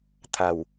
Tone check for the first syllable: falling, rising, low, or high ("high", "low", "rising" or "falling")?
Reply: low